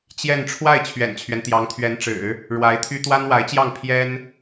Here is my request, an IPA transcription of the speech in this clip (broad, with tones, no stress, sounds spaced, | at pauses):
t͡ɕ j ɛ˥˧ n ʈ͡ʂʰ w a˥˩ ɪ̯ t͡ɕʰ ɥ ɛ̰˨˩ n t͡ɕʰ ɥ ɛ˦ n t̪ j ɑ˧˥ ŋ t̪ʰ ɥ ɛ˧˥ n ʈ͡ʂ ɻ̩˨˩˦ | ɻ w a˧˥ ɪ̯ t̪ʰ y˥ t̪ w a˥ n w a˧˥ ɪ̯ t͡ɕ j ɑ˥˩ ŋ pʰ j ɛ˥ n